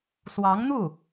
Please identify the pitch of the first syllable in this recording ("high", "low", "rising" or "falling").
rising